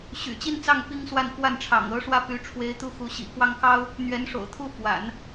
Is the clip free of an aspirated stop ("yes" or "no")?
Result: no